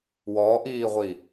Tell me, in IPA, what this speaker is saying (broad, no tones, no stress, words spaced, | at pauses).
wɔʔiːʁʷi